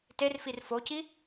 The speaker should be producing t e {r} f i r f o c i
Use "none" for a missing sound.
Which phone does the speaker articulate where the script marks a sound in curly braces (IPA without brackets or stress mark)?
r